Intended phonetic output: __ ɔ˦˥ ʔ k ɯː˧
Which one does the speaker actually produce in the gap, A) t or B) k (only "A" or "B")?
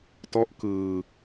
A